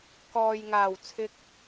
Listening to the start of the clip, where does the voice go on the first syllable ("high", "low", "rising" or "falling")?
low